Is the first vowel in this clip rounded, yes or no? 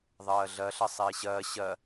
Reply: no